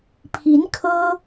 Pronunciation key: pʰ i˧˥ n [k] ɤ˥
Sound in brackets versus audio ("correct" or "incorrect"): incorrect